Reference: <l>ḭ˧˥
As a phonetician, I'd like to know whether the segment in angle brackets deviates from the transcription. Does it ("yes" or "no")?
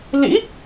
no